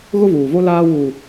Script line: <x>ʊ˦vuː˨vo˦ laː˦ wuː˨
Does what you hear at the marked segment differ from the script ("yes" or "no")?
yes